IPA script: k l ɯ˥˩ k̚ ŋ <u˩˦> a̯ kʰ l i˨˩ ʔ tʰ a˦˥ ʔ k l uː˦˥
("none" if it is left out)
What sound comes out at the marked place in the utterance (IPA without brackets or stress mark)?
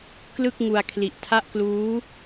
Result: u˧